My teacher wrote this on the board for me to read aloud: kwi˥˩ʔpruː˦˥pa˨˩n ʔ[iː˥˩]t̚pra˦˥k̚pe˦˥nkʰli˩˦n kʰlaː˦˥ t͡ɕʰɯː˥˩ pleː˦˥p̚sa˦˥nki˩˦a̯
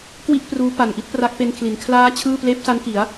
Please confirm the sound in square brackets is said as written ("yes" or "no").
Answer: no